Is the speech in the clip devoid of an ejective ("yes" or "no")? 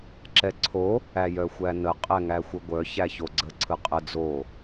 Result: no